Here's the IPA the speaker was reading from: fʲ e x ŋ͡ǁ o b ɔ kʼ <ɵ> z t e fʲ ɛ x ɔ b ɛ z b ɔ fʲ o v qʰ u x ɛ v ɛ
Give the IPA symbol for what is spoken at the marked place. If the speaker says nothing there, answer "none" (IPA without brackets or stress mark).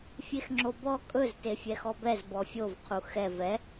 ɵ